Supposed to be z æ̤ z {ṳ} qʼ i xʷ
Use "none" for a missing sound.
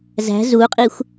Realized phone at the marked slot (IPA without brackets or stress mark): u